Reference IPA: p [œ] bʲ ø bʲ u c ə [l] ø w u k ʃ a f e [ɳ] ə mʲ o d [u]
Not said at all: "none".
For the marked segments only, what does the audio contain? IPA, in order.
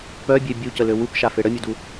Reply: œ, l, ɽ, u

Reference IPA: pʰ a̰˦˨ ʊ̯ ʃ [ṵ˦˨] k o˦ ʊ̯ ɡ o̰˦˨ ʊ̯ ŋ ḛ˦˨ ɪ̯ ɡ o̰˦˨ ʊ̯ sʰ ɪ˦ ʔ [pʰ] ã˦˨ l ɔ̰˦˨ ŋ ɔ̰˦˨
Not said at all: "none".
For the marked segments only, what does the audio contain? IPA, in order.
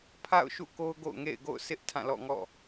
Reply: ṵ˦˨, tʰ

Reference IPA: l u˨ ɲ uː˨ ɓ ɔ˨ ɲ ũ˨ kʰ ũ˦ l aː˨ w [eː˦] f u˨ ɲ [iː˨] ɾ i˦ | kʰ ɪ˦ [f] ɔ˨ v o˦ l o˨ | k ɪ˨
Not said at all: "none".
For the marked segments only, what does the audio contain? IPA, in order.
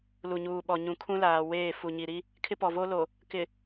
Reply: eː˦˨, i˨, p

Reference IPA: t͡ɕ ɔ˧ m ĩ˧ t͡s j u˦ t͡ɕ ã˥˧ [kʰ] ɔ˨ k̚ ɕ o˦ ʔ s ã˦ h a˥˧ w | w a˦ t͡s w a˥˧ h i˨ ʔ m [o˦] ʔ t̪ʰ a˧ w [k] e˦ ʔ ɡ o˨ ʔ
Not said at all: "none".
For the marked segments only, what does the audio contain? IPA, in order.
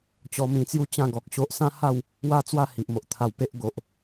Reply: ɡ, o˨, p

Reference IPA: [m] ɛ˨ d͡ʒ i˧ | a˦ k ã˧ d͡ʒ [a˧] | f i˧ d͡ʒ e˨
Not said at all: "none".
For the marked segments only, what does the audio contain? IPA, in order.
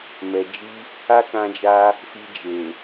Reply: m, a˧

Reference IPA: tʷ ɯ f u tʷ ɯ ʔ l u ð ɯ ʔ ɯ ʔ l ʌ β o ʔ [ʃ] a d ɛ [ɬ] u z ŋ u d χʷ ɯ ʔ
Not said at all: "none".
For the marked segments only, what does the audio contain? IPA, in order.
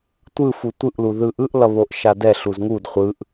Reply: ʃ, ɬ

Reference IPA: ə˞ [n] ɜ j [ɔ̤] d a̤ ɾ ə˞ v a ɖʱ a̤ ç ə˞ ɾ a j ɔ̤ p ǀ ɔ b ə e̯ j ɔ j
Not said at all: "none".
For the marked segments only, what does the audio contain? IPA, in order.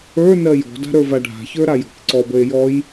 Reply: n, ɔ̤

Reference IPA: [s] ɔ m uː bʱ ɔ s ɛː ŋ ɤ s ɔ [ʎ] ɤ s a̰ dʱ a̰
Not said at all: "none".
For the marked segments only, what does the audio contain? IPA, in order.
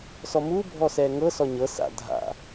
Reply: s, ɲ

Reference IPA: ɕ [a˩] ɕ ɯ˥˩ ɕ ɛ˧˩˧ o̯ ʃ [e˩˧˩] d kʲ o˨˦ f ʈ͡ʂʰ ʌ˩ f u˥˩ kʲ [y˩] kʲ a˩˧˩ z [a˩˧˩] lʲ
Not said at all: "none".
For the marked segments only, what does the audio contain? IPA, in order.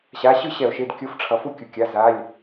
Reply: a˩˧˩, e˩˧˩, u˩, a˩˧˩

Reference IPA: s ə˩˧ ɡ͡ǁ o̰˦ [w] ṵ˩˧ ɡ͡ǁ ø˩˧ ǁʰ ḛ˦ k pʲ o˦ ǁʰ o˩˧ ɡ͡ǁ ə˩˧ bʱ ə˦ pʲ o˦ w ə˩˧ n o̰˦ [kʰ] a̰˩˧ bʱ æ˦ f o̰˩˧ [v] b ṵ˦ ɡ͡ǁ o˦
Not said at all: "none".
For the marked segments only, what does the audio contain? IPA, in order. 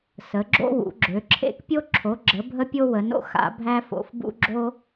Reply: w, x, f

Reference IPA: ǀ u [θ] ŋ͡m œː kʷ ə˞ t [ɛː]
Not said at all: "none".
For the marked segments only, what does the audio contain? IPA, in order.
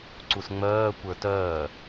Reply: s, œː

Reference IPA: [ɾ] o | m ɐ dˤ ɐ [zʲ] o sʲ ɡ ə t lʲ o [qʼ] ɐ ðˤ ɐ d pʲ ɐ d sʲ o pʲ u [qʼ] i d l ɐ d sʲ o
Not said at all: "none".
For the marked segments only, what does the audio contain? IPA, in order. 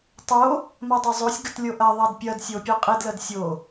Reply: tˤ, zˤ, ʔ, qʼ

